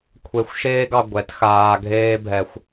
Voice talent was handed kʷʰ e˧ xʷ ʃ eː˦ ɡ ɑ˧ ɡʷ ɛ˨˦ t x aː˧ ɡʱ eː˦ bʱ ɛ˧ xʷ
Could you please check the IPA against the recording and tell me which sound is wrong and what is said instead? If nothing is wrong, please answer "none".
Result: none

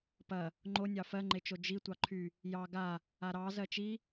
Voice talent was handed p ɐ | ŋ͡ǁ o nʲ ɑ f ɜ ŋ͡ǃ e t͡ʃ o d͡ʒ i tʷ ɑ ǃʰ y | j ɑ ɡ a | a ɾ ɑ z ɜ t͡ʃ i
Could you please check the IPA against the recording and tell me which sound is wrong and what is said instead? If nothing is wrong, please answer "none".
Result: ŋ͡ǁ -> ŋ͡ǃ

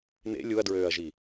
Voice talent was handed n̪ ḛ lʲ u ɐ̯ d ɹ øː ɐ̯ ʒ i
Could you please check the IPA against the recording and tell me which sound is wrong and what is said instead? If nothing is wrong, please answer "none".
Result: none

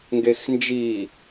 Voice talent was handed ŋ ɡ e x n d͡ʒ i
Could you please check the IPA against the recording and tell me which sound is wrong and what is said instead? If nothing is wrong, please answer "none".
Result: none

